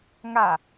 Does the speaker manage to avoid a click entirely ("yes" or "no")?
yes